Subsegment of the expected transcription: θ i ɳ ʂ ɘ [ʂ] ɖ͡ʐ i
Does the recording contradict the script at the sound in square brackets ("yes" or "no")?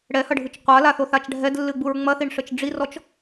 yes